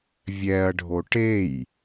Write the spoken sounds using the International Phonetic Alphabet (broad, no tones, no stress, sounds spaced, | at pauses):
vʲ ɛ ɐ̯ ɖʱ o ʈ e j